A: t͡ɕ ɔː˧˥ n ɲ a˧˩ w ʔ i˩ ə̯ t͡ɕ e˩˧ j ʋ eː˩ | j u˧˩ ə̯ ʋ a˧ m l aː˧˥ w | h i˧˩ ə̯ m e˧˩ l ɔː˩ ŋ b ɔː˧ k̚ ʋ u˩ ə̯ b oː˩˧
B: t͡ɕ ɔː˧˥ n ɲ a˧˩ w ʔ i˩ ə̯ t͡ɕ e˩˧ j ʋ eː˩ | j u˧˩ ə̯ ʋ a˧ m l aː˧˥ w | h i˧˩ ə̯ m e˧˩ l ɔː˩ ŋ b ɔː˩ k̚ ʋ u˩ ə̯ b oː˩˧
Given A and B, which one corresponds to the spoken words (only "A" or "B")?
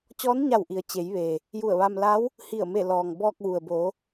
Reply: A